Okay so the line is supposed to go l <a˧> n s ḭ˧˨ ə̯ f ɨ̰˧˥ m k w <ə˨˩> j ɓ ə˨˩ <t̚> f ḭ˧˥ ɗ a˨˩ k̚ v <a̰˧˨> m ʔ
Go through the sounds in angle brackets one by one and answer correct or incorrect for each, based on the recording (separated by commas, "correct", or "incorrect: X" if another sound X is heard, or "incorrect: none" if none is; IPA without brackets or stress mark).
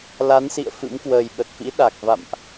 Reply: incorrect: a˨˦, incorrect: əː˨˩, correct, correct